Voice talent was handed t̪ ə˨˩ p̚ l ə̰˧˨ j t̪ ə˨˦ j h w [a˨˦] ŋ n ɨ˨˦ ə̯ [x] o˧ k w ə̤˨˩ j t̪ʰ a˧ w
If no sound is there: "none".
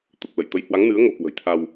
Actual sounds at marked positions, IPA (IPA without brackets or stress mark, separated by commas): a˨˦, ŋ